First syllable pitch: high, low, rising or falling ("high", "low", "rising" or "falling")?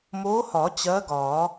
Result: rising